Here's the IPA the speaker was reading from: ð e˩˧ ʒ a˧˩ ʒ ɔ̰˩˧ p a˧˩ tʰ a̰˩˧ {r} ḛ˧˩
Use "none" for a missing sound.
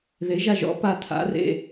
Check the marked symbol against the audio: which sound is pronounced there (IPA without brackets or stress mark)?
r